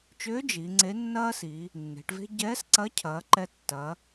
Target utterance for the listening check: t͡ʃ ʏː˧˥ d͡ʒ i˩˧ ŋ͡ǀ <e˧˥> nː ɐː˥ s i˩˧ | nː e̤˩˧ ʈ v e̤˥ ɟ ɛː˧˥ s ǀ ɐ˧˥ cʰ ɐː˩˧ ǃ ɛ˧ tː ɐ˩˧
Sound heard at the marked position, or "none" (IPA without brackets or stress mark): e˧˥